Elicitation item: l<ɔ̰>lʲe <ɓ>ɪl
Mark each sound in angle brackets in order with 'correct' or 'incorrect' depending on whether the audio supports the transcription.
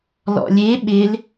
correct, correct

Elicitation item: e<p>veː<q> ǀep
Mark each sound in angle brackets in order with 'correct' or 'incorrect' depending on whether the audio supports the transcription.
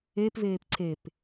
correct, incorrect: p

